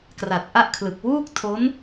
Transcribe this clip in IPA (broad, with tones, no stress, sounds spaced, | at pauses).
k r a˨˩ t̚ ʔ a˥˩ ʔ kʰ l ɯ˨˩ k̚ w uː˥˩ k̚ tʰ o˦˥ n